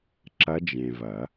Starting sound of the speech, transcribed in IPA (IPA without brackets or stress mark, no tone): ǁ